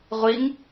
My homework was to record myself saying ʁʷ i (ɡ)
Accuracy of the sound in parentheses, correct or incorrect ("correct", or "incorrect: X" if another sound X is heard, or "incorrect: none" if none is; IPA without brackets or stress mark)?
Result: incorrect: ŋ